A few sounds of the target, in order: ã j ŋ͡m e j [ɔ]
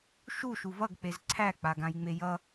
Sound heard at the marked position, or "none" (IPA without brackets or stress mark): ʌ